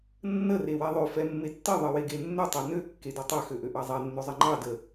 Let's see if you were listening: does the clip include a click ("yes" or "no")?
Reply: yes